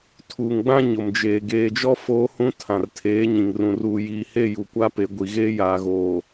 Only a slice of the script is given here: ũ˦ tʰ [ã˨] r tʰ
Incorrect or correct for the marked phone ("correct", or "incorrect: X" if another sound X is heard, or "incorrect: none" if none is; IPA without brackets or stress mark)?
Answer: correct